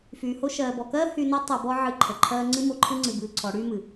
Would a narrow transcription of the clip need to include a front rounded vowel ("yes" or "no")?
yes